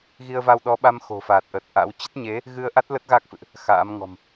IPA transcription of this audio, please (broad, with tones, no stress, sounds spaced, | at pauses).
ɣ i˧ ə̯ v a˧ w ɗ ɔ˨˦ ɓ a˧ m x o̤˨˩ f aː˨˩ t̚ ʔ ə˨˩ t̚ ʔ a̰˧˥ w t͡ɕ ə˦˥ t̚ ɲ e˨˦ | ɣ ɨ˧ ə̯ ʔ a˦˥ t̚ l ə˦˥ t̚ ɣ a˦˥ k̚ f ɨ̰˧˨ ʔ | x a̰ː˧˥ m ŋ ɔ̤˨˩ m